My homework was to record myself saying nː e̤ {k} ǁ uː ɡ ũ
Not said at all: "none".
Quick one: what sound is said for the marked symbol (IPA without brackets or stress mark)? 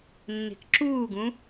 k